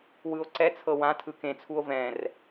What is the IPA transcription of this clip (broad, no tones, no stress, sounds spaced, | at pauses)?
w ɯ o̯ ǀ ɛ t͡sʰ ɤ w ã tʰ ɯ k ẽ t͡sʰ u o̯ v ɛ̃ r